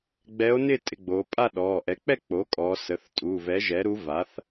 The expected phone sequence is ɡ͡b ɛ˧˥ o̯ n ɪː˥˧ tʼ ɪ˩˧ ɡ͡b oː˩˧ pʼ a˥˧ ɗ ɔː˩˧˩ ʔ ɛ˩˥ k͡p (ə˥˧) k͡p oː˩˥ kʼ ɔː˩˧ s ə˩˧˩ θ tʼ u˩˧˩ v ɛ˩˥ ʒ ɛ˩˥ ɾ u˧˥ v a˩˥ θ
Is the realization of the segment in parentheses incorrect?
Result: yes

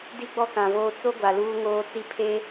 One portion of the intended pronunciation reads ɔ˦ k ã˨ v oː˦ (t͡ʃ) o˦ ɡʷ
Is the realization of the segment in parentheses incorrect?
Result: yes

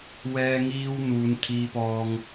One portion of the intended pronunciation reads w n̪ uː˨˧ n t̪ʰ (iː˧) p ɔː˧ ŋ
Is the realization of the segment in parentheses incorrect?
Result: no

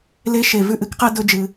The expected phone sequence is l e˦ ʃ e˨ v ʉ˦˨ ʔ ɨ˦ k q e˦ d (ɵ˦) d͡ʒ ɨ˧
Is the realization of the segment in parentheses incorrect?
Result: no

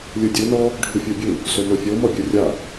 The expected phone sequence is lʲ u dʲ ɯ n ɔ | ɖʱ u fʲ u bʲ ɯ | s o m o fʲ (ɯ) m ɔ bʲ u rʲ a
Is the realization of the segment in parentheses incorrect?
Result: yes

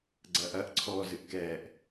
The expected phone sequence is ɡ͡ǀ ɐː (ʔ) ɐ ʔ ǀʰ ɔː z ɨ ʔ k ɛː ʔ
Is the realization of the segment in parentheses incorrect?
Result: no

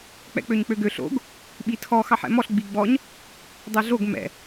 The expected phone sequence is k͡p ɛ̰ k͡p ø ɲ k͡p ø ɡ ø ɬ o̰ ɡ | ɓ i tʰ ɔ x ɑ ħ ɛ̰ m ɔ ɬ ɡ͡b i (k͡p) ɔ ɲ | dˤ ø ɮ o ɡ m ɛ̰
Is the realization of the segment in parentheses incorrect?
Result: yes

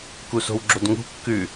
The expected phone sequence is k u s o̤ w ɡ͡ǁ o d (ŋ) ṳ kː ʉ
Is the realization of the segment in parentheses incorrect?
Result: no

